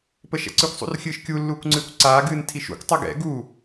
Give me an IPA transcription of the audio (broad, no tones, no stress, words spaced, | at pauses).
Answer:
pəʃɛ̰ǀɨkʷ sˤṵrxʲɨːʃkʲu lːuːkʷŋ͡ǀɨːkʷǀaː ɡɨːntʰiʃṵkʷ tˤɘɡɛ̰ ɡu